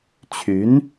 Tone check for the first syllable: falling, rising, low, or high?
rising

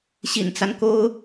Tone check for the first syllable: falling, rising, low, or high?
low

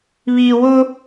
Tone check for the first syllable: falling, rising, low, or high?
low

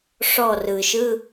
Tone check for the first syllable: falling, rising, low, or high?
falling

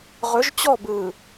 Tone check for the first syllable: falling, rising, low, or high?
rising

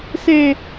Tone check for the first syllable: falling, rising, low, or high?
low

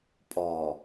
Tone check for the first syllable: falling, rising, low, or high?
low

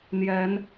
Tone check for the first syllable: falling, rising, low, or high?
rising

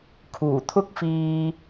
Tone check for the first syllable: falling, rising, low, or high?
low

